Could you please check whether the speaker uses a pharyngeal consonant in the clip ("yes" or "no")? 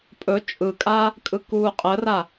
no